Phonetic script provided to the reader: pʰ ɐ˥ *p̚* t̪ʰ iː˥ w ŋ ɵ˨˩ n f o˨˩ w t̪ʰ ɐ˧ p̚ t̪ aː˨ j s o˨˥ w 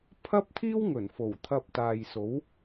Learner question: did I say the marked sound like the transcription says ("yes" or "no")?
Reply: yes